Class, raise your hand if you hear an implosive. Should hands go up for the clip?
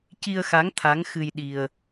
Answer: yes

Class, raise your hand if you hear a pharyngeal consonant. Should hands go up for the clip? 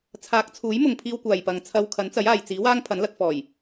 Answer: no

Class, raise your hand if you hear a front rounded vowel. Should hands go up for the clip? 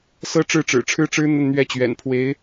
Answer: no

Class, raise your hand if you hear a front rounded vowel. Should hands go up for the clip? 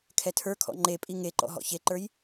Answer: no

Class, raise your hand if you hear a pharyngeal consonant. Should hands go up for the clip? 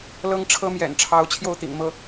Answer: no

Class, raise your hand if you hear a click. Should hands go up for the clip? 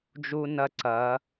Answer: yes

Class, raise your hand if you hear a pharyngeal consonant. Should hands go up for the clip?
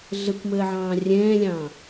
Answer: yes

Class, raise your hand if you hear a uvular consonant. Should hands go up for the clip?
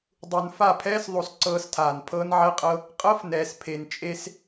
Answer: yes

